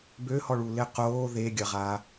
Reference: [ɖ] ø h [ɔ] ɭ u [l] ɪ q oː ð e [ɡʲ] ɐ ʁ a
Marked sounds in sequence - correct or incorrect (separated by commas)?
incorrect, correct, correct, correct